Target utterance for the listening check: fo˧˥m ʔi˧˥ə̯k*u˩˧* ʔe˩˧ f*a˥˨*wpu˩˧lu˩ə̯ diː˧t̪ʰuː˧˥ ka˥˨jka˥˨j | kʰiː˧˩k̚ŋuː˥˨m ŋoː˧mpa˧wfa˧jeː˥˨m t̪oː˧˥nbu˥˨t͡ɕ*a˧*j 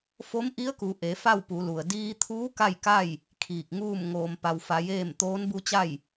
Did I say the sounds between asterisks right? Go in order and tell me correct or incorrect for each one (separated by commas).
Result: correct, correct, incorrect